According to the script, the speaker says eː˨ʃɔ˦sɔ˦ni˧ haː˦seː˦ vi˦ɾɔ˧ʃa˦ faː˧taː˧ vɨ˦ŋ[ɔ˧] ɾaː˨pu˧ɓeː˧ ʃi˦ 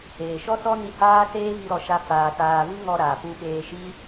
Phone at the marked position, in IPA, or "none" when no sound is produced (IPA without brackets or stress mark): ɔ˧